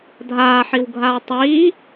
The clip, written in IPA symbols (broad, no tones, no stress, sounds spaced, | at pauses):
dʱ aː ħ i w ɡʱ a tˤ i